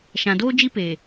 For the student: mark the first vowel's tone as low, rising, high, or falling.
low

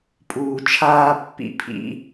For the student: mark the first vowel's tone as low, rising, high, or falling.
low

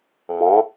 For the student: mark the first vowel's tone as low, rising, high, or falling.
rising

